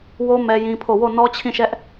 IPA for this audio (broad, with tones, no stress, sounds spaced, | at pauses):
w o˦ m ɛ˦ j ĩ˦ pʰ o˦˨ w o˦˨ n ɔ˦ t͡ɕʰ ĩ˦˨ ʃ ɛ˦ ʔ